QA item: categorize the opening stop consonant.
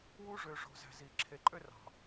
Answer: click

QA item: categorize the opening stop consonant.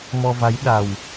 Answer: implosive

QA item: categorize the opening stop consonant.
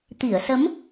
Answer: plain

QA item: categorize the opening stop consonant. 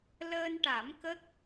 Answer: plain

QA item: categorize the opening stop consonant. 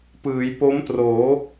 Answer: plain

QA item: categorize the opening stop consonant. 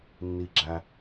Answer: click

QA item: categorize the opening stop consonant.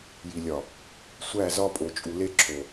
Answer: ejective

